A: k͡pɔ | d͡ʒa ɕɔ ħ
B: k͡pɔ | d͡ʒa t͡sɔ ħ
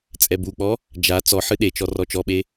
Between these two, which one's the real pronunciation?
B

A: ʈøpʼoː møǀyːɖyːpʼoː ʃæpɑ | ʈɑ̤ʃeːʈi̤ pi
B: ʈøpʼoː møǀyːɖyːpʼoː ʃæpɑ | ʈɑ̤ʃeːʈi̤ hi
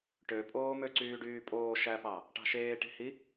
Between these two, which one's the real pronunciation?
B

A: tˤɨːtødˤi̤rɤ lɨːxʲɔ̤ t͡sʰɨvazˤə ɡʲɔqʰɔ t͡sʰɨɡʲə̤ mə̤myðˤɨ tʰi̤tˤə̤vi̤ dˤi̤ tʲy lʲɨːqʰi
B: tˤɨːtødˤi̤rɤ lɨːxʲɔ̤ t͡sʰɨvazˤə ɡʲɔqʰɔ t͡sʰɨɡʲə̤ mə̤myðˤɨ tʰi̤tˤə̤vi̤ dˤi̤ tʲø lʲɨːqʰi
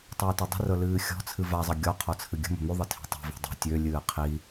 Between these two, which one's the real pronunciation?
B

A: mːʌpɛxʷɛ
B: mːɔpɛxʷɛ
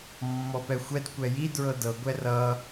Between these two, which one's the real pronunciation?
B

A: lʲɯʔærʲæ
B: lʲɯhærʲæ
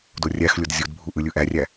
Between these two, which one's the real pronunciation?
A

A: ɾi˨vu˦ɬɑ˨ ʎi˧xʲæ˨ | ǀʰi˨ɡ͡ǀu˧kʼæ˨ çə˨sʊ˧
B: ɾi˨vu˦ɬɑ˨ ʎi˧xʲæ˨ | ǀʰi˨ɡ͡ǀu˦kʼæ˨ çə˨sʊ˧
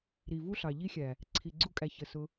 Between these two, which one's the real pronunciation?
A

